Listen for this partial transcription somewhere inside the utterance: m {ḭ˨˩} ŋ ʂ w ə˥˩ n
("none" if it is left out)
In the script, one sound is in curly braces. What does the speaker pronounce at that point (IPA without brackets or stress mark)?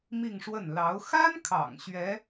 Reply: i˥˧